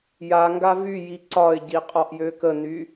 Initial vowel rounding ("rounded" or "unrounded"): unrounded